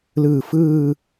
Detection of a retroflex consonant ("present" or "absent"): absent